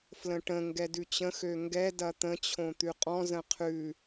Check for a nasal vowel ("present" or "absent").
present